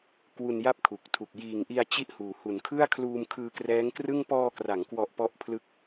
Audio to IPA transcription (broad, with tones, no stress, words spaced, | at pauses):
kwu˧nja˥˩p̚kʰu˨˩k̚tʰu˨˩k̚ jiː˨˩ŋʔi˧a̯ t͡ɕi˥˩ʔhuː˩˦ hu˩˦nkʰɯ˥˩a̯ kʰluː˧mkʰɯː˧krɛː˦˥ŋkrɯ˥˩ŋ pɔː˧kra˩˦ŋkwɔ˨˩ʔ pɔ˥˩ʔpʰlɯ˥˩k̚